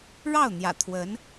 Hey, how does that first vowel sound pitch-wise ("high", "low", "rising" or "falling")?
falling